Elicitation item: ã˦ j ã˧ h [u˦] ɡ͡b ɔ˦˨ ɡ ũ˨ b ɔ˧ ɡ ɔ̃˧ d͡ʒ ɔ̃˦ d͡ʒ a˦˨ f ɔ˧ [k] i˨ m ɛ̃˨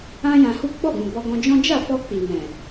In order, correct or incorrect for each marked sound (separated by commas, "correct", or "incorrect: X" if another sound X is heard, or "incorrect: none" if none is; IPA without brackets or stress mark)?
correct, incorrect: k͡p